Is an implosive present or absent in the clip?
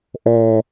absent